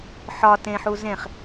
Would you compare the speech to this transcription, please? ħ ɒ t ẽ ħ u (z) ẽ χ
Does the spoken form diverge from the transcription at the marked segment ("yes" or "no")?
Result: no